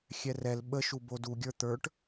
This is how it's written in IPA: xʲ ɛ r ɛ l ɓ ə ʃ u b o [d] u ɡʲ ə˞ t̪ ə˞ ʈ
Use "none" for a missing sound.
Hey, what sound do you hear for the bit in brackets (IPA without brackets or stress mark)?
d